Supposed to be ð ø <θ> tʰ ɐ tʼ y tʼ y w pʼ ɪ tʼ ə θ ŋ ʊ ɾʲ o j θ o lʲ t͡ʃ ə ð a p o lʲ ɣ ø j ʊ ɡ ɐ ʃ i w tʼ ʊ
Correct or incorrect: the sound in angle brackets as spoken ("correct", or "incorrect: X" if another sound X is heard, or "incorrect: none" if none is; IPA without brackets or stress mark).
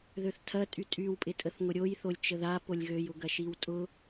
correct